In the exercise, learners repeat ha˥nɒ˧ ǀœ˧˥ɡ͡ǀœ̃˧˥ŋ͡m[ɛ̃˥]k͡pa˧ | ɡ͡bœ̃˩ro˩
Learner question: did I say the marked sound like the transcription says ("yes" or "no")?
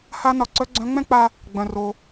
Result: yes